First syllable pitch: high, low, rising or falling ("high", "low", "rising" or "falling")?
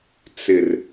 low